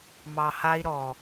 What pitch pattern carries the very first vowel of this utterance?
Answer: low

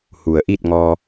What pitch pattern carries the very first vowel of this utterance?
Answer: low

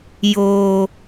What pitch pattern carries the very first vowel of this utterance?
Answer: low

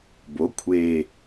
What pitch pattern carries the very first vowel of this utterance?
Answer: rising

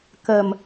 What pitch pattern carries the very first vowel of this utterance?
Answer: low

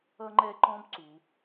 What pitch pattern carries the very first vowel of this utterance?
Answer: high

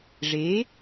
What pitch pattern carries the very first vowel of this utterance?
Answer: rising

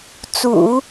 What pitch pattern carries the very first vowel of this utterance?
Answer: low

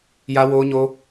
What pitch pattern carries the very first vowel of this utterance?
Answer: high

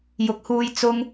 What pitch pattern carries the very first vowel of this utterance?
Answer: rising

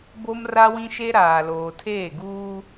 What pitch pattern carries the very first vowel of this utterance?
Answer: high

